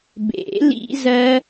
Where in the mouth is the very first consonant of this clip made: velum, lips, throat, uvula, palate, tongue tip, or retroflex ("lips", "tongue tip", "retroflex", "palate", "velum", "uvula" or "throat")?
lips